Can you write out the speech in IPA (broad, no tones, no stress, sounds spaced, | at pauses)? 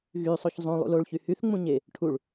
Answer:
ɣ y sˤ o ç zˤ ũ lˠ ṵ l o ɭ ç y h y θ ŋ͡m ũ ɲ e | ʈʰ u ɭ